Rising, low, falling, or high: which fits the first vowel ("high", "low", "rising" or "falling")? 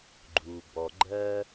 low